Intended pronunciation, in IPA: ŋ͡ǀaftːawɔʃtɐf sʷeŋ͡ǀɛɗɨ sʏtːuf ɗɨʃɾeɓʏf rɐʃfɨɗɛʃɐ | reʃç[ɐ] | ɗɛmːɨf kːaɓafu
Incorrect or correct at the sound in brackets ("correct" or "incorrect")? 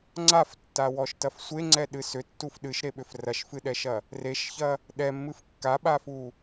correct